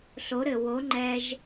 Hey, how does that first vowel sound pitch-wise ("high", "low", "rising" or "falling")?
rising